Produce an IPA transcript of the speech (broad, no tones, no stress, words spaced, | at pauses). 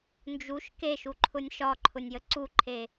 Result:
nd͡ʒuʃ keʃuǃʰʊnʲ ʃɒǃʰʊnʲjə ǀuǃʰe